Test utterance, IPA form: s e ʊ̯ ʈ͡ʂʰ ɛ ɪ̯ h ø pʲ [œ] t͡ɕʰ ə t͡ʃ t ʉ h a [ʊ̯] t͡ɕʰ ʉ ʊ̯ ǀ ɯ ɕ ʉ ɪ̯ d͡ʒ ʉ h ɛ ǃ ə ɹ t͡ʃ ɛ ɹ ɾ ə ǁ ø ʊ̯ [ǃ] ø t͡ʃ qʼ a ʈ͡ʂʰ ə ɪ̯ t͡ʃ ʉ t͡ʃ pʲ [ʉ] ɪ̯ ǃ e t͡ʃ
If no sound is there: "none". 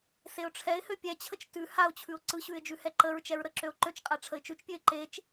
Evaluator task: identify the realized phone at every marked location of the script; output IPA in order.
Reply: ɛ, ʊ̯, ǃ, ø

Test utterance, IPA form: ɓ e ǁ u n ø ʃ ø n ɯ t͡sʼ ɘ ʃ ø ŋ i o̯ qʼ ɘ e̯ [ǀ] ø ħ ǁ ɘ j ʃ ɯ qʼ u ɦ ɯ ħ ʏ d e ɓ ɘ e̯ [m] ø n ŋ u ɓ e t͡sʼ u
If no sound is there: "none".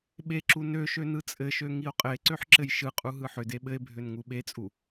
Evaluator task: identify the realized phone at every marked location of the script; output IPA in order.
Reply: ǀ, bʱ

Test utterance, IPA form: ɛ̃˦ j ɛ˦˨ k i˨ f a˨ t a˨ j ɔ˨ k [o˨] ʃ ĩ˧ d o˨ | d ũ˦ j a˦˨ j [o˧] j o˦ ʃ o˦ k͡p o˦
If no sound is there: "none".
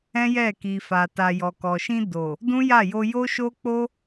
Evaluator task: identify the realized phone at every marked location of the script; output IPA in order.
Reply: ɔ˨, o˧

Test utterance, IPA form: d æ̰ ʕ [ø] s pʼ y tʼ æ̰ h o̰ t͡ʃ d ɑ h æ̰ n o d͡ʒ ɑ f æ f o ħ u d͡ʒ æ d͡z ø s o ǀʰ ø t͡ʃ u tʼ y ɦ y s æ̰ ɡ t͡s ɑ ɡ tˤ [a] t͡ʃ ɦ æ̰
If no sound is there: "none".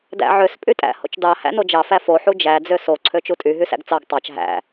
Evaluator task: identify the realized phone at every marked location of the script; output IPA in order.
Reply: ø, ɑ

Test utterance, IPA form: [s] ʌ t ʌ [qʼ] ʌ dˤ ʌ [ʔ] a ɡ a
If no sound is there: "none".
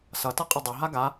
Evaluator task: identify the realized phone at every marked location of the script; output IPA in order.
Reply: s, qʼ, ɦ

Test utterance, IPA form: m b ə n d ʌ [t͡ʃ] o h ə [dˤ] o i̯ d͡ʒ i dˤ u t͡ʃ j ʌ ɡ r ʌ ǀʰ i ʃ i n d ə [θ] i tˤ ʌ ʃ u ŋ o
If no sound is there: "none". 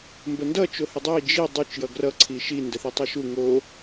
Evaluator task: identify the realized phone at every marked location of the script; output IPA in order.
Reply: t͡ʃ, dˤ, θ

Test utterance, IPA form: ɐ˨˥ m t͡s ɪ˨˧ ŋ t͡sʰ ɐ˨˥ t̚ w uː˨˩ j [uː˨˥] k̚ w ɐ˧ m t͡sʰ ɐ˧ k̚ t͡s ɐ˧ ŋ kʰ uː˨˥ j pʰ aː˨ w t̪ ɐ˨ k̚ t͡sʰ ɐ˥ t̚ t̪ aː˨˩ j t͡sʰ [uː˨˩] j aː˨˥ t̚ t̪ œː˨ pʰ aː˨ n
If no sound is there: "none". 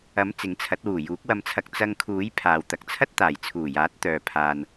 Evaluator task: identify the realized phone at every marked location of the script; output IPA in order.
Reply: uː˨˥, uː˨˩

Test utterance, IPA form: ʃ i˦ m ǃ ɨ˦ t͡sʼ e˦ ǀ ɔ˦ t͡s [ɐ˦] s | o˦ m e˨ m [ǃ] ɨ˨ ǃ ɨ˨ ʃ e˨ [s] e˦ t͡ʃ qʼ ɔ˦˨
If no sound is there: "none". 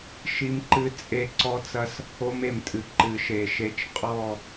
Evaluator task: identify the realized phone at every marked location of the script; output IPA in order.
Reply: ɐ˦, tʼ, ʃ

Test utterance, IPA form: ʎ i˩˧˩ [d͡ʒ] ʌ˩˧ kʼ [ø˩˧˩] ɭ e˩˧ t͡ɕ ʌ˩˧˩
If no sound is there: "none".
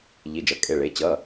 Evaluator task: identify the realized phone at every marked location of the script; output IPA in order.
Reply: d͡ʒ, e˩˧˩

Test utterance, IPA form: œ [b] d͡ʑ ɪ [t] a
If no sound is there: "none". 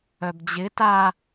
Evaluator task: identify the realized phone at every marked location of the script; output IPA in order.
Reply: b, t

